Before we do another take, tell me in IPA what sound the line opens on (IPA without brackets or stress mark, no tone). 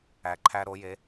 æ